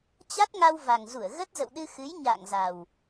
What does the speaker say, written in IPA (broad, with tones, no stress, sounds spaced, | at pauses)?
t͡ɕ a˦˥ t̚ ŋ a˧ w v a˨˩ ŋ z u˧˩ ə̯ ɣ ə˦˥ t̚ z ə̰˧˨ w ɗ ɨ˧ x ɨ˨˦ j ɲ a̰ː˧˨ ŋ z a˨˩ w